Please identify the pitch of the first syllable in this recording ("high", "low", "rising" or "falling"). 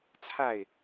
falling